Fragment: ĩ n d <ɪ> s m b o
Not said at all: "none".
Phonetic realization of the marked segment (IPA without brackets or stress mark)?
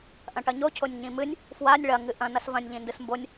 ɨ